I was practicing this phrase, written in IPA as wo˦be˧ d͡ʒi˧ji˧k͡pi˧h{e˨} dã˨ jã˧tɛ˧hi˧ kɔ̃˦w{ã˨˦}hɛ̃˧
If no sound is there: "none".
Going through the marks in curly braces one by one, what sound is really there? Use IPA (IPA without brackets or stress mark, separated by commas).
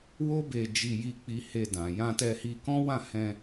e˧, ã˦˨